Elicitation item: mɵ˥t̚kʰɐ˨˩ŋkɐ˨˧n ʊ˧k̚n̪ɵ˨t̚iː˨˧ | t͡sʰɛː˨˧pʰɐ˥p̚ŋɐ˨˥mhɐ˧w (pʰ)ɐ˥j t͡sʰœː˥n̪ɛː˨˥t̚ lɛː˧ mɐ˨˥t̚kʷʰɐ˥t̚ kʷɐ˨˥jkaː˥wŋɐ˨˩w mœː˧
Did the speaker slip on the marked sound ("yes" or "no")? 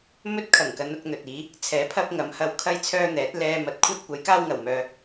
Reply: yes